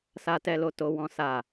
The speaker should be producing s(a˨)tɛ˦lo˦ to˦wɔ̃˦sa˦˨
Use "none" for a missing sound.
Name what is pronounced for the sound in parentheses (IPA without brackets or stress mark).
a˦